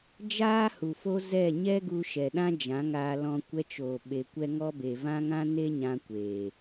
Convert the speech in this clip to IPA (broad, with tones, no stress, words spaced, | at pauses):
d͡ʒaː˦hu˨ fo˧ zɛ˦˨ ɲɛ˦ɡu˧ʃɛ˨ ɗã˦d͡ʒã˨˦ŋaː˧lɔ̃˧ kʷɛ˧t͡ʃoː˨ ɓe˨ kʷɛ˧ŋɔ˧be˨ vã˦ŋã˦ne˦ ɲã˧kʷeː˨